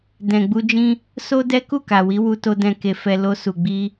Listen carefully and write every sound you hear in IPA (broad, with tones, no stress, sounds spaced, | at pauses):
d ɛ̃˨ ɡ͡b u˧ d͡ʒ ĩ˦ | s o˦ d ɛ˦ k u˦˨ k a˨ w i˨˦ w u˧ t o˧ d ɛ̃˨ k e˨ f ɛ˨ l o˧ s u˨ ɡ͡b i˧